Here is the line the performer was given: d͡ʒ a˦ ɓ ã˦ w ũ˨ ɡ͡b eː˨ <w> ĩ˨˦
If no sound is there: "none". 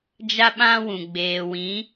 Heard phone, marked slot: w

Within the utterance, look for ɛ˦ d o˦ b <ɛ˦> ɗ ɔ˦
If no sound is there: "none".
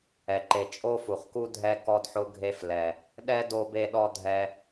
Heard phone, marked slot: e˦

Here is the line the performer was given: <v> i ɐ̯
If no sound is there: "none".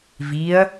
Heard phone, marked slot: v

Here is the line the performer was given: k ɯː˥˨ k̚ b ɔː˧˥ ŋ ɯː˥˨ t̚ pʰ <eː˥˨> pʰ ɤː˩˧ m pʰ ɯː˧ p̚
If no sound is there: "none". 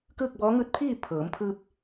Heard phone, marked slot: iː˥˨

